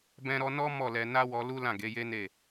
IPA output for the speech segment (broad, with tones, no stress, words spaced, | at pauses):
bɛ̃˧ɾɔ˧nɔ˦ mɔ˦˨lɛ˧ na˦wɔ˧lu˦ lã˦˨ɡe˨˦je˦ ne˦˨